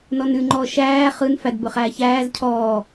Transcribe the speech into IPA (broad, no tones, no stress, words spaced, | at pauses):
nɔnʉ ŋ͡ǃɔːʃæː χɯn fæd bɵχæːçæːz cʰɔː